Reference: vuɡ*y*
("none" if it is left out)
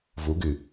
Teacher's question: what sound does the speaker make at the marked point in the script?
y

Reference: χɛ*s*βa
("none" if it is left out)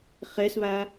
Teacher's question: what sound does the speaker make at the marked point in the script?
s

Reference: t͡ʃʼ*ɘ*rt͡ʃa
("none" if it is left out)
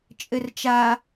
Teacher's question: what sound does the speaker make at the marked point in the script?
ɘ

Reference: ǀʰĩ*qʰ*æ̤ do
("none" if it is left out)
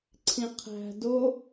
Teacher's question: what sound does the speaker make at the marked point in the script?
qʰ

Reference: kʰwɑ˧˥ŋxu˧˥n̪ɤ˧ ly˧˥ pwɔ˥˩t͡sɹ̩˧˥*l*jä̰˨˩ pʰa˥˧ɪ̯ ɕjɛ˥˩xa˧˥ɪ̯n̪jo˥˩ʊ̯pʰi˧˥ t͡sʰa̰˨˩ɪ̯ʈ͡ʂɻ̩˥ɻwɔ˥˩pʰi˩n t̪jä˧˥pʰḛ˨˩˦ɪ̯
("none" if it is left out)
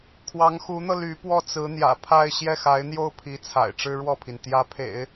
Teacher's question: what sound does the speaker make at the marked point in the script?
n̪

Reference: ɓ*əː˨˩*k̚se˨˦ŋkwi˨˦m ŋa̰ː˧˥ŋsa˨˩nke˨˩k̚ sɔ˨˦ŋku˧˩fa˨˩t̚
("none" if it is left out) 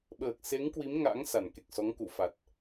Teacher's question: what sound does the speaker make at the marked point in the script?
əː˨˩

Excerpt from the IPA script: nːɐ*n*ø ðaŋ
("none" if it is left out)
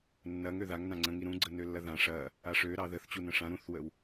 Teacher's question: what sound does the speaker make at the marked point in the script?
ŋ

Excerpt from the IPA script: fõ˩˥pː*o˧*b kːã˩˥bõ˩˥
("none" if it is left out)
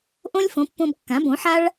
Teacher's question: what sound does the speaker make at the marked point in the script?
õ˧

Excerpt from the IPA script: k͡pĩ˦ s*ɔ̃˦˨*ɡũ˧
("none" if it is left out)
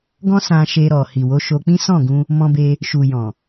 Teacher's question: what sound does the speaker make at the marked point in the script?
ɔ̃˦˨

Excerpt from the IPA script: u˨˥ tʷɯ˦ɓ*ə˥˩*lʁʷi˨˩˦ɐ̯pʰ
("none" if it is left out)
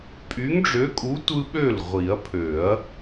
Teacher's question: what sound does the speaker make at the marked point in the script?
ø˥˩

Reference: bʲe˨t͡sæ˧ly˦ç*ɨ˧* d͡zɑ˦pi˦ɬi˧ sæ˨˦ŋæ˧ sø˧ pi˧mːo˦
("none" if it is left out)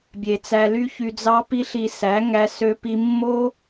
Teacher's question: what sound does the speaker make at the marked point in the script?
y˧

